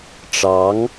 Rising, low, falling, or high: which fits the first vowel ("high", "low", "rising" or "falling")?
rising